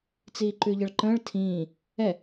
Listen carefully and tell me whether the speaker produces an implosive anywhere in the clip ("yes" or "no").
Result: no